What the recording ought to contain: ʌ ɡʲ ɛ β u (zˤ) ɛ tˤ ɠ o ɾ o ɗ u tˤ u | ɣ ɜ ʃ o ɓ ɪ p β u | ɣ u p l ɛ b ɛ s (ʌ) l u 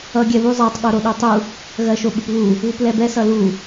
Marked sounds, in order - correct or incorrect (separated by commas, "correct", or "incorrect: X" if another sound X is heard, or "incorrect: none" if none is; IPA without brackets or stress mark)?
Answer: correct, correct